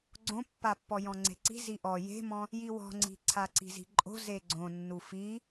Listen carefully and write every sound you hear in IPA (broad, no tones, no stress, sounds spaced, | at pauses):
ɡ͡ǀ õ pː a pː ɔ j ɔ̃ ŋ͡ǀ e̤ ǀ i̤ z i ʔ ɔ j e̤ m ɔ̃ | j i w ɔ̤ ŋ͡ǀ i̤ ǀʰ a ǀ i̤ z i̤ ǃʼ o̤ z e ɡ͡ǀ õ nː u f i